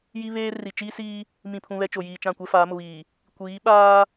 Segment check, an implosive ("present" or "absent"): present